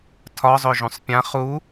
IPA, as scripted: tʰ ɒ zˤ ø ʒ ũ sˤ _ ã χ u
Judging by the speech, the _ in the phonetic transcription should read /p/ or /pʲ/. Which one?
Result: pʲ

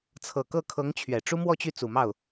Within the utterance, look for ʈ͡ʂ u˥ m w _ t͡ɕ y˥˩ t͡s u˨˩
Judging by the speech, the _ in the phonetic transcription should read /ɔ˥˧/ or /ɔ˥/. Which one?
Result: ɔ˥˧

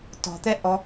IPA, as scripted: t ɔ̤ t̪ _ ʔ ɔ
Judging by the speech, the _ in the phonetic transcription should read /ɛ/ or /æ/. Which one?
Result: ɛ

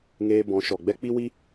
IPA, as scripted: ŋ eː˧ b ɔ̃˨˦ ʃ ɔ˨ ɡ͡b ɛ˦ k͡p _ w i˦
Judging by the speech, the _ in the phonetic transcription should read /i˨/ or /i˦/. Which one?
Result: i˦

